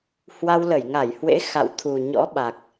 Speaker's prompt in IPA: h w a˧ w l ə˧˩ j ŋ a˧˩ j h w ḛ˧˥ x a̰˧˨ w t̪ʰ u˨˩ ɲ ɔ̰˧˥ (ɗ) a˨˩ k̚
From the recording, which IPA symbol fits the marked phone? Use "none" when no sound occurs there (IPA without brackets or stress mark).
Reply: ɓ